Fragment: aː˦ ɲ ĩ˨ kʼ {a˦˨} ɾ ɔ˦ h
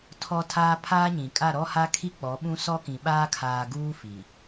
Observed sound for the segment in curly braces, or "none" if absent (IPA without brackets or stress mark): a˦˨